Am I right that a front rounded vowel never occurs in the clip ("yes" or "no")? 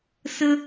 yes